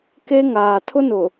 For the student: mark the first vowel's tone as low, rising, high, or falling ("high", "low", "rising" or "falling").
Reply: high